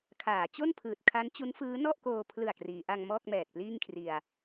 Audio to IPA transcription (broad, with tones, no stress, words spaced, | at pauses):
kʰaː˩˦t͡ɕo˥˩n pʰɯː˨˩t̚kʰa˦˥n t͡ɕu˦˥nfɯː˦˥ nɔ˥˩ʔkoː˧pʰlɯ˨˩a̯ kriː˩˦ ʔa˧ŋmɔː˥˩k̚ mɛː˨˩t̚pliː˥˩ŋkʰri˧a̯